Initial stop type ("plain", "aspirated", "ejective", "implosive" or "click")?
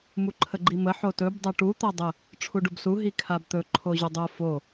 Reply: click